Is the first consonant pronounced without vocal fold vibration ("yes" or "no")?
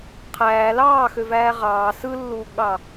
yes